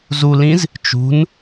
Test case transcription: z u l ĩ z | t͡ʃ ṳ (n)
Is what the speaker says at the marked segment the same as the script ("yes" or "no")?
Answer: yes